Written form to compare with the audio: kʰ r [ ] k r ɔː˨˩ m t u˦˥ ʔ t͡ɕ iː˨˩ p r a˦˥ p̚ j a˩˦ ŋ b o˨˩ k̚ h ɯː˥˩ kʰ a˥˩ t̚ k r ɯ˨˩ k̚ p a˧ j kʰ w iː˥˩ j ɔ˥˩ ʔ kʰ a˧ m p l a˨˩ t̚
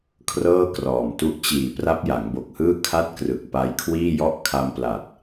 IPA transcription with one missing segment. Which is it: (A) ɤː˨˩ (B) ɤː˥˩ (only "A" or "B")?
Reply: B